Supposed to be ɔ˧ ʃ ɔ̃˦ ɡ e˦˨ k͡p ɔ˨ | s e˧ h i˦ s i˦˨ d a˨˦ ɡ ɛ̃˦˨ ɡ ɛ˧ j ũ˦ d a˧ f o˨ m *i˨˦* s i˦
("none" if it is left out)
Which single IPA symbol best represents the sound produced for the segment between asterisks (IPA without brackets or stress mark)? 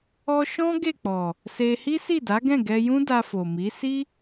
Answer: i˨˦